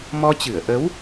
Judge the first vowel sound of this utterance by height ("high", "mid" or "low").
mid